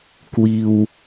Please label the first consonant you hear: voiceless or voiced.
voiceless